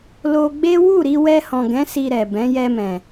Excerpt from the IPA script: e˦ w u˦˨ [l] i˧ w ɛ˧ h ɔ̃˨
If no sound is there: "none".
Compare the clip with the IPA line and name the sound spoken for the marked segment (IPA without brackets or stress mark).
ɾ